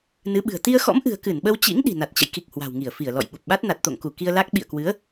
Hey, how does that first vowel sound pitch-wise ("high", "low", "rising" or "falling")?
rising